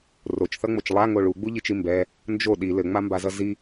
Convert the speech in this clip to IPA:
rot͡ʃθʌŋ͡mot͡ʃ lˠaŋo ɭuɡ͡buʎit͡ʃi mbɛ | nd͡ʒo ɗi lɘŋ͡mambazʌ zi

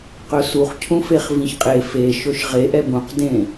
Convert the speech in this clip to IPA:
qɵsuχcʰũfeχ vĩçqʼe fe ʃɵʃʁe ʔɛbũqdẽ

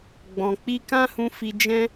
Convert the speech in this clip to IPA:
ɡ͡bɔ̃˨k͡pi˧ kã˦hũ˧fi˧ d͡ʒɛ̃˦

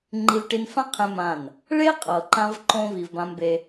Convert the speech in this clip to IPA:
ŋ͡ǃi˧vʈi˧nfã˦ qʰẽ˦mã˦˨n | ɭe˦qʼɤ˨ǃã˧vǃõ˧ vi˧vbã˦mbe˦

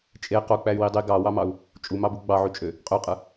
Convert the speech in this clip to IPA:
t͡ʃʼe qok͡pæy̯wi dˤi ɡɑwɑmɑu̯ | t͡ʃʼumɑbu ɡ͡bɑʕyt͡ʃʼø | qʼøqʼɯ

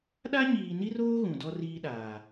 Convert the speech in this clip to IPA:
ɗa˦ɲiː˨ni˦roː˦ ɣũ˨dɔ˦riː˦ɗaː˨

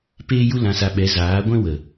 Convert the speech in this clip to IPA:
peː˦ju˦ lã˧sa˧ɓɛ˨˦ zaː˨˦ɡʷɛ̃˦wə˨

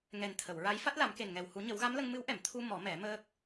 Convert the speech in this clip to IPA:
ŋɛ˨˩nt̪ʰə˨˩˨wɹa˧˥j fa˦˥t̚la˨˩˦mke˨˩nŋɛ˨˩w hu˨˩˦ɲə˨˩˦wɣa˧˥mlə˧ŋ mɨ˧˥wʔɛ˨˩˨m t̪ʰu˧ mɔ˨˩˦mɛ˨˩˦ məː˦˥k̚

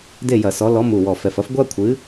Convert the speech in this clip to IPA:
de˥˨jɐ˧˩˧sɔ˨˥ lɔ˨˥ mu˨˩wɔ˨˩ fɛ˨˩fɐ˥f ɡʷa˥kʷʰɨ˨˥

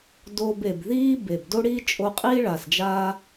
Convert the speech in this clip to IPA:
do˧be˨bðiː˦ be˨b do˦ɽiː˦t͡ʃʼo˧qʼiː˦ ɭaː˨sd͡ʒaː˦

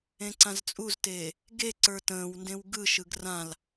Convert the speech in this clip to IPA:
ẽǀãzt͡sʼuzteː | ɡe ǀə˞tə̃ːwndẽw ɡɯʃɯɡ rãl

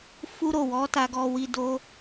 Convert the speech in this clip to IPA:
fu˦ɾo˦˨ wɔ˨˦ ta˧ɡɔ˧wi˧ do˦

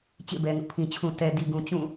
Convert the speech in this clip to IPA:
t͡ɕḛ˦˨bɛ˨ŋʊ˦ʔpʰĩ˨ t͡ɕʰũ˨tɛ˨di˨ɡũ˨ t͡ɕũ˦˨

